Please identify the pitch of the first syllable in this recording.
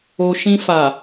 low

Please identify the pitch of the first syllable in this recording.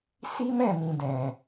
high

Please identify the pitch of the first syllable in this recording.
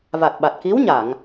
low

